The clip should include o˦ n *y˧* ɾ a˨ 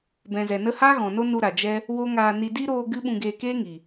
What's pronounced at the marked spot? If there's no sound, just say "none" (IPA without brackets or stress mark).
u˧